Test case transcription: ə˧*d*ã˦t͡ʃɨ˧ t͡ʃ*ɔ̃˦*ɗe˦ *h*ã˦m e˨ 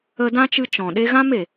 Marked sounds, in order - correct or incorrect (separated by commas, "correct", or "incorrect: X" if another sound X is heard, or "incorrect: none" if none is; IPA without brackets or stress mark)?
correct, incorrect: ɔ̃˨, incorrect: ɣ